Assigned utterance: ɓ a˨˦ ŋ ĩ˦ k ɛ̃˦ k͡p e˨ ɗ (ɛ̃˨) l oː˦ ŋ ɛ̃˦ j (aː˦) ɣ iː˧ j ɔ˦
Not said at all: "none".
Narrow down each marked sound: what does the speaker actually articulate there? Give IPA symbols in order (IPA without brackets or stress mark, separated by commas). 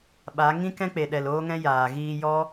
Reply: ɛ˨, aː˨